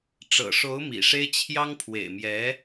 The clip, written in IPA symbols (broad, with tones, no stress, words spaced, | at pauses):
ʈ͡ʂɤ̰˨˩ʂo˧˥ʊ̯ mḭ˨˩ʂe˥ɪ̯ t͡ɕʰjɑ˥ŋpʰwḛ˨˩ɪ̯mjɛ˧˥